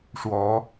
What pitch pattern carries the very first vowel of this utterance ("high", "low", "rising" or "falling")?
rising